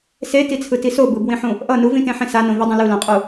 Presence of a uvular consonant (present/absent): present